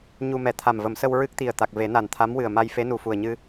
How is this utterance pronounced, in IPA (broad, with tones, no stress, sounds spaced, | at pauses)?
ɲ u˧ m ɛ˨˩˦ t̪ʰ a˨˩ m v ə˨˩˦ m s ə˧ w ɹ ɨ˦˥ k̚ t̪ i˨˩ ə̯ t̪ a˨˩ k̚ v e˨˩˦ n a˨˩ n t̪ʰ a˧˥ m w ɨ˨˩ ə̯ m a˧ j f e˧˥ n u˨˩ f u˨˩ ə̯ ɲ ɨ˧